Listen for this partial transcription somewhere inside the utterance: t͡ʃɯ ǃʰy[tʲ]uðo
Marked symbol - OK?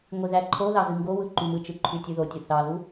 yes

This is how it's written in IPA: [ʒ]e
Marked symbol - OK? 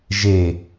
yes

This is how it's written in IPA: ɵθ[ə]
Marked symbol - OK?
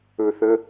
yes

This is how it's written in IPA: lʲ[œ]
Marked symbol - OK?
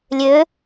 no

